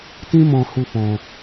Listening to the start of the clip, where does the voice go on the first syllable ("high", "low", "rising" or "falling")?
high